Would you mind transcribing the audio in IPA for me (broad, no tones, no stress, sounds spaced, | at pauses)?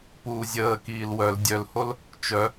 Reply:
p uː zʲ əː k iː l w œ l dʲ œ l h o l | t͡ʃ œ